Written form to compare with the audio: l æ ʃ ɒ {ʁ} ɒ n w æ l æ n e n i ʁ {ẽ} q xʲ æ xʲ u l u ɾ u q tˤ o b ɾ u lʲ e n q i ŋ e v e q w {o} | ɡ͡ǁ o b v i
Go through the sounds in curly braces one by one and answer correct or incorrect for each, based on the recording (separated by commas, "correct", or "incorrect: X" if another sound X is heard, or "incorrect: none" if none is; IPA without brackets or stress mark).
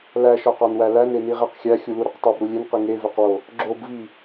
incorrect: q, incorrect: e, correct